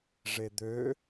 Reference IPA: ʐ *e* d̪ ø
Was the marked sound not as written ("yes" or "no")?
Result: no